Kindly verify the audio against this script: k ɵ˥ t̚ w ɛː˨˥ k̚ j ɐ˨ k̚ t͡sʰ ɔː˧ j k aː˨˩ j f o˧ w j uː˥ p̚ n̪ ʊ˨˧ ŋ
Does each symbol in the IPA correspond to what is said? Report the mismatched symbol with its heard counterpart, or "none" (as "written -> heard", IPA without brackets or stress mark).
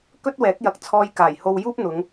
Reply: f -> h